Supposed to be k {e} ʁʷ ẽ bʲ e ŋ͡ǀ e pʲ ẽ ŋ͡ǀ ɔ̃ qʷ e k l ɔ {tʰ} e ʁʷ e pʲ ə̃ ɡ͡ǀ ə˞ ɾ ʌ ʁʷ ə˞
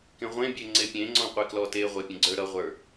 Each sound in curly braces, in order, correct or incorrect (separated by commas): incorrect, incorrect